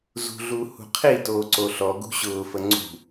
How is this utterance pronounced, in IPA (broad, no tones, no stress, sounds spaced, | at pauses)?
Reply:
z ṳ ɮ u h ṳ qʰ i t oː ǀ o ɬ ɔ ɡ ṳ ɕ ʊː f ə ŋ͡ǀ ṳ